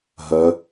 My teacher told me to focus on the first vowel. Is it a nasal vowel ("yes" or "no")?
no